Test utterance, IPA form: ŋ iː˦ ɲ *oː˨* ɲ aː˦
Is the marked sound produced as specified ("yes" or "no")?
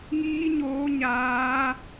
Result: no